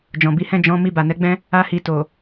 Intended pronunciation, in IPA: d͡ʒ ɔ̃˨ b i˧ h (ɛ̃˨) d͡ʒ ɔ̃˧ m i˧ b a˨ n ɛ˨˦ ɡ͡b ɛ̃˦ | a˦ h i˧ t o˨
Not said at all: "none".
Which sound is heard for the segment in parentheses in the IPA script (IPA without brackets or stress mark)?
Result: ɛ̃˦